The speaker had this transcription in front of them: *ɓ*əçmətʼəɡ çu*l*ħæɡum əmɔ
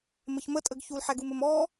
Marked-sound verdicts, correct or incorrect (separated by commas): incorrect, correct